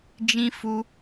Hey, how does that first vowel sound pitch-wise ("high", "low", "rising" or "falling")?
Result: high